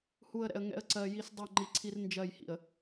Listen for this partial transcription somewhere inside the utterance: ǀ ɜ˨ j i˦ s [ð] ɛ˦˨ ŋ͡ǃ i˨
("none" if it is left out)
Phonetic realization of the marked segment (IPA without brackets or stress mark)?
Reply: dˤ